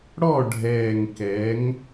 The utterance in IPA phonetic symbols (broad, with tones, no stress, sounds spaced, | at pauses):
ɽ ɔ˥˨ ɖʱ ɛː˨˩ ŋ k ɛ˩˧ ŋ